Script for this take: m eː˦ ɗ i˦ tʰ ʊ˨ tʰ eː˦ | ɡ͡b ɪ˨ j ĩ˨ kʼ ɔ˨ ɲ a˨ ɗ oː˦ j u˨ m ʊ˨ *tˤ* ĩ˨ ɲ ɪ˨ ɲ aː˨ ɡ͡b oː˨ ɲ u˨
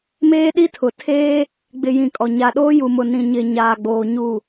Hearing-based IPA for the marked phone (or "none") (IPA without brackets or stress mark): n